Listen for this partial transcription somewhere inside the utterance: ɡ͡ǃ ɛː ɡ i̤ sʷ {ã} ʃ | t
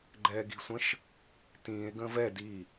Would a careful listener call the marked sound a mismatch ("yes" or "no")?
yes